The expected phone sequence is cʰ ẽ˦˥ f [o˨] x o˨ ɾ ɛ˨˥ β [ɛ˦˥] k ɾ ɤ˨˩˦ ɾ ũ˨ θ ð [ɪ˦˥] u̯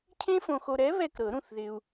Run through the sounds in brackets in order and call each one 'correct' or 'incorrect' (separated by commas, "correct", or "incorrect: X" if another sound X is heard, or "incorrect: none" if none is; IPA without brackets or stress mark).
incorrect: õ˨, incorrect: ɛ˥˨, incorrect: ɪ˨